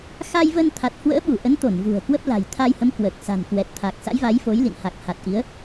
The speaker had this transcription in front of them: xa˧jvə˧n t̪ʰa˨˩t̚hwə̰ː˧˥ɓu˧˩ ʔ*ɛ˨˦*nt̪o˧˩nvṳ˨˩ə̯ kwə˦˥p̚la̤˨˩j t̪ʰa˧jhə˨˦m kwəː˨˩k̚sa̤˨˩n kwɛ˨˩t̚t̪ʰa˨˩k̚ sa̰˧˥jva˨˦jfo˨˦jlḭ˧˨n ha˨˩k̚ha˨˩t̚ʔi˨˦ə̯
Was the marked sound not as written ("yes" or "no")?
yes